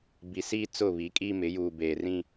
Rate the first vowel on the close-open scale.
close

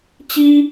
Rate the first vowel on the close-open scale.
close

